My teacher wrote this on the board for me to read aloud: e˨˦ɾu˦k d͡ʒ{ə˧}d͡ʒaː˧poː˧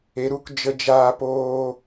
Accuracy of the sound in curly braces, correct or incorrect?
correct